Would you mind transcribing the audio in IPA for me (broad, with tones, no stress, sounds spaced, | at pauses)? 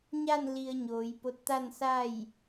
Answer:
ɲ a˥˨ n l i˧ ə̯ ɲ oː˩˧ j p o˧˥ t̚ t̪ a˥˨ n s a˥˨ j